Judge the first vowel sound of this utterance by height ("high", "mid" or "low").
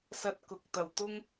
low